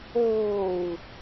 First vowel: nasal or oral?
oral